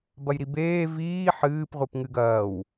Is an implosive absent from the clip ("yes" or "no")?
yes